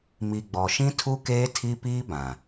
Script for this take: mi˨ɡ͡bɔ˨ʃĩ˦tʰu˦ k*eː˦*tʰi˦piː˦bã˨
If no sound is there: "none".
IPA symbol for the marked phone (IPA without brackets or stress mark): eː˦